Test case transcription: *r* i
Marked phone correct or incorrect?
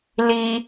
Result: incorrect